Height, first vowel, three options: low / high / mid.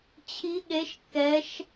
high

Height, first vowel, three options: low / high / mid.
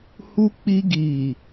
high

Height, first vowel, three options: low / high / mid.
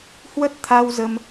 mid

